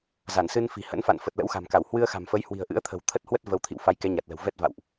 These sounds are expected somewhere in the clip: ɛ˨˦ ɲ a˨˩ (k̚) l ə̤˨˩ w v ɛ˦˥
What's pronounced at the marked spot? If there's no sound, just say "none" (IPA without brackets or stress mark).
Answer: t̚